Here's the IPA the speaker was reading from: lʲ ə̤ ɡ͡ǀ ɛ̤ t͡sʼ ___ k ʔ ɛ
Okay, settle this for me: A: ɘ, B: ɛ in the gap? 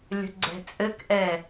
A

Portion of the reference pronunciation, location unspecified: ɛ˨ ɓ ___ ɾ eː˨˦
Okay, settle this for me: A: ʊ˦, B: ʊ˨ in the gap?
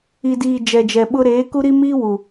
A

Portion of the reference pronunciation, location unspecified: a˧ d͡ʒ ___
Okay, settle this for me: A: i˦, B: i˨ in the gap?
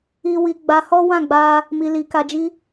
A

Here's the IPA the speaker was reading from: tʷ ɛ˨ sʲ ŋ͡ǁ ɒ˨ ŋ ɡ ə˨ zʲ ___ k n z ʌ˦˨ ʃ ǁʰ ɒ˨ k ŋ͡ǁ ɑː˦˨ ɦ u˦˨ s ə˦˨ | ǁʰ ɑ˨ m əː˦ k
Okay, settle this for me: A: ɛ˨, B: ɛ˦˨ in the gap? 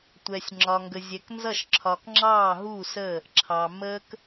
A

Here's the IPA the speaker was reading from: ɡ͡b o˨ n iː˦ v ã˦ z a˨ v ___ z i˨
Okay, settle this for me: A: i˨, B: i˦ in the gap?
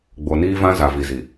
A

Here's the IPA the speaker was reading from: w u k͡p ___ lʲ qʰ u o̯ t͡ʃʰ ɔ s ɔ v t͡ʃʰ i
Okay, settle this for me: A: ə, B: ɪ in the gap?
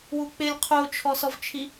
B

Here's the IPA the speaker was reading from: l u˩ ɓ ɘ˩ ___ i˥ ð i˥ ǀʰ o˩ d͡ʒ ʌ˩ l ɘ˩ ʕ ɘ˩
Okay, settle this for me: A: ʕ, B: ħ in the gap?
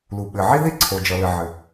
A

